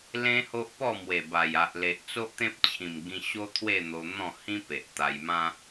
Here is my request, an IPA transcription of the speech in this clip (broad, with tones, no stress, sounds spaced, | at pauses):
l ẽ˦ h o˦ ʔ p ɔ˥˧ m w e˨˩ b a˨˩ j a˨ ʔ l e˨ ʔ t͡s o˦ ʔ t̪ ẽ˦ p̚ t͡ɕʰ ĩ˨˩ m ɡ ĩ˧ ɕ o˦ t̪ʰ w e˥˧ n̪ o˧ n̪ ɔ̃˥˧ h ĩ˦ p e˨ ʔ t̪ a˧ j m ã˦